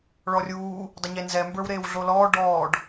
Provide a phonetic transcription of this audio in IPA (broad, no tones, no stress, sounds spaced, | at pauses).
ɭ ɔ rʲ uː | dˤ ə ɲ e n z ɛ m b ə˞ w ɾ eː w ɮ o l ɔː ɖ ɔː ɖ